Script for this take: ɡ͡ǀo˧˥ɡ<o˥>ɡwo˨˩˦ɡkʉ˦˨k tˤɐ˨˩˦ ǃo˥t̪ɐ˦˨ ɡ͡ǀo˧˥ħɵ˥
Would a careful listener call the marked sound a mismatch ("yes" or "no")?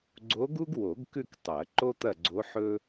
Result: yes